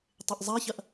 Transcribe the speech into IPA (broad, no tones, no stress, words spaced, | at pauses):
tˤɪʔzˤaçɐʔ